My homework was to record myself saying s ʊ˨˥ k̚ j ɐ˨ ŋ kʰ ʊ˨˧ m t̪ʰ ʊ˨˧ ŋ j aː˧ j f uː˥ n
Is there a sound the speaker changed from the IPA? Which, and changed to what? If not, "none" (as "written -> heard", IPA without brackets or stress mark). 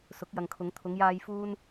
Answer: m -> ŋ